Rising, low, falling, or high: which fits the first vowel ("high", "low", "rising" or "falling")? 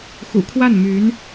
low